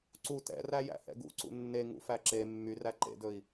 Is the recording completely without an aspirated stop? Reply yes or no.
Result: yes